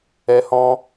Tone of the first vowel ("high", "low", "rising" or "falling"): high